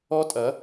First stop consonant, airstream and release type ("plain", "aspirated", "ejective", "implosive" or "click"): ejective